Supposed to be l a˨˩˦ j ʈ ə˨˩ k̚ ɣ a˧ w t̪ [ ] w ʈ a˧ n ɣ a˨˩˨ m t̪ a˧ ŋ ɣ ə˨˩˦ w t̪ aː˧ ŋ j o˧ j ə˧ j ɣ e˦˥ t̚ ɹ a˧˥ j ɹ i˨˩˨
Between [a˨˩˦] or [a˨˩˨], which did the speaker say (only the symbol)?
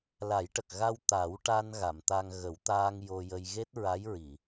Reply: a˨˩˦